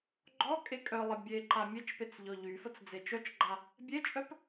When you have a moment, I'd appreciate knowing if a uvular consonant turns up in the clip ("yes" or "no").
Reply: no